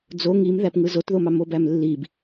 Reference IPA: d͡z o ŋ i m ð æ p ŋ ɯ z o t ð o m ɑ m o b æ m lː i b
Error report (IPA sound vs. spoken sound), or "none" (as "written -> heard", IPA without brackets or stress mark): none